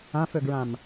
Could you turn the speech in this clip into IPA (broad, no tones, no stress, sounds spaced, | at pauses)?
ã f ɵ ɡ ɹ ã m